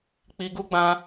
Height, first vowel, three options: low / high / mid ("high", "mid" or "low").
high